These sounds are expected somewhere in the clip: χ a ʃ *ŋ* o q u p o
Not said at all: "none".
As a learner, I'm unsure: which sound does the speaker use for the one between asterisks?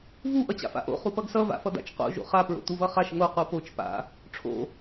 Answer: ŋ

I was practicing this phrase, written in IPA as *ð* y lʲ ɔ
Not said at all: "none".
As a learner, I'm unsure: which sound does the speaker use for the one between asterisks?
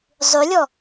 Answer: zˤ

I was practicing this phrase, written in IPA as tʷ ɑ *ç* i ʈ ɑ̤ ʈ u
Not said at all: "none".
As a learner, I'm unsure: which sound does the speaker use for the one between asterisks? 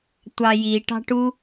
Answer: j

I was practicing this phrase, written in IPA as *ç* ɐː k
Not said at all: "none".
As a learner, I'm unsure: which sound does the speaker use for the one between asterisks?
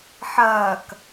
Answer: ħ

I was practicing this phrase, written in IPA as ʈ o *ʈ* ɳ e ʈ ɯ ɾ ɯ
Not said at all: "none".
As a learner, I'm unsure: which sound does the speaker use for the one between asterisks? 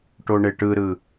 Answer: none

